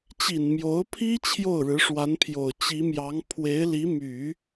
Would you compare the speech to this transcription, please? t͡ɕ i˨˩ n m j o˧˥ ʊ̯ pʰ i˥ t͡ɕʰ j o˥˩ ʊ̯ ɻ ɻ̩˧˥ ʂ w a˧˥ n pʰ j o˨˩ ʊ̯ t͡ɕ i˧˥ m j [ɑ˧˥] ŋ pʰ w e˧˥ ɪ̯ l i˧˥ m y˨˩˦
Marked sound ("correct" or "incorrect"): correct